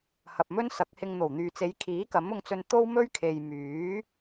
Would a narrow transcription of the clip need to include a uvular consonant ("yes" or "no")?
no